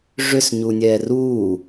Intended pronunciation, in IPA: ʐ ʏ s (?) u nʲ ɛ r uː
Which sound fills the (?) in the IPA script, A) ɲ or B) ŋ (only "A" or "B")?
A